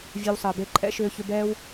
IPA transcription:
vʲɛ˧wsˤəː˨be˧ ǃʼɛ̰˦ʃʏː˧çʏ˧bɛː˦w

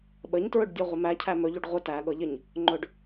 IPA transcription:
ɓəɲtɹɵɖdʲɤʁʷə mæcʰæ mɵʎuɖ ʁʷə tæɠɤʎɪɲ | ŋ͡ǃɵɖ

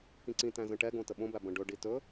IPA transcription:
kĩǀĩtæ̃ zə̃ʈɛɡõ təɓõbæ bə̃ɖɵɖi tɵ

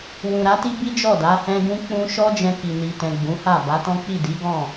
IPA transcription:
wũ˨ ɾa˨˦ti˦ bi˦d͡ʒɔ˦˨da˨˦ hɛ̃˦ɡũ˦ k͡pũ˦ ʃɔ˦d͡ʒɛ̃˧ ki˨ni˨tɛ̃˨ ɡ͡bũ˨˦ha˦˨ ba˨˦tɔ̃˦k͡pi˦˨ di˨˦ɡɔ̃˦˨

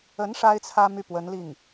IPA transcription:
ə˧˥n ʂa˥ɪ̯t͡sʰä˥ my˥˩pwə˧˥nli˥˩ŋ

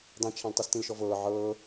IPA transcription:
dˤĩt͡ʃʰãl tˤɤstĩlʃɔvɤː ʕɤː

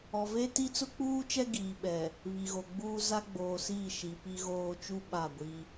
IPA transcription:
ɔ˨ve˦ ti˦t͡sʊ˦k͡puː˦t͡ʃɛ˦ ɡiː˨ɓɛ˨ | βi˨ɣo˨ɡ͡buː˦ za˦ɡ͡boː˨siː˦˨ ʃi˨pi˦ɣoː˦ t͡ʃu˦ ɓa˦˨ɡʷi˦

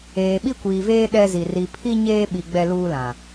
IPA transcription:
eː˨ɓi˦kʷiː˨veː˦ ɗɛ˦zi˨ ri˨pʰi˦ ɲeː˦ɓi˨ ɡ͡bɛ˦luː˦lã˨

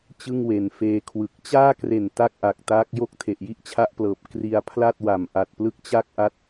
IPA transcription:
t͡ɕɯ˥˩ŋwe˨˩nfeː˧kʰwɯ˨˩k̚ t͡ɕaː˥˩kre˨˩n ta˥˩k̚ʔa˨˩k̚ taː˦˥k̚jo˥˩k̚ tʰe˨˩ʔji˥˩ʔt͡ɕʰa˦˥ʔplɤː˨˩p̚ kri˧a̯ pʰla˥˩t̚wa˨˩m ʔa˨˩t̚plɯ˦˥k̚t͡ɕa˥˩k̚ ʔa˥˩t̚

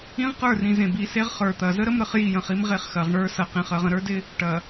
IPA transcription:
ĩ˦ʁqə˞˦˨rĩ˨ zẽ˨bi˨se˦ʁ χə˞˨t̪ɐ˨ zə˦ɾə˦mɾə˨χ ji˦˨jə̃˨χi˦m ʁe˦χxɐ˨ʁɳə˞˦ sɐ˨qẽ˨χ ɐ˨ʁə̃˨ɾə˞˦dɪ˦ | ʈɐ˨

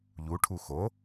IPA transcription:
ʎuʈʰu xo

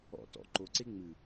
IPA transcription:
ɔ̰ tɔ̰ǃoǀe ŋ͡mɨ

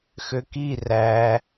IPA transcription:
xøki ræ

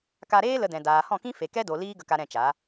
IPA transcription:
ka˧ɾeː˦ lə˧dɛ̃˨ daː˨hɔ̃˦˨kĩ˦ fe˨ kɛ˦do˨ liː˦ɡə˧ka˧ ɾɛ̃˦˨t͡ʃa˨˦

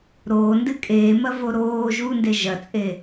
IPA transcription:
ɾoːndɨ kʼeːmɐvo ɾoː ʒunde ʒɐt͡sʼe

